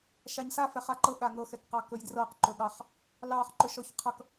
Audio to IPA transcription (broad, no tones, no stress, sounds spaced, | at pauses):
ʃ a ɲ s a f ɛ χ a ǃ ɤ ɠ a ŋ ɤ x ɛ k q ɑ k ɵ j d r ɤ q ǃ ɵ ɠ ɑ χ | l ɑ χ ǃ ɵ ʃ ɔ ç qʰ ʌ k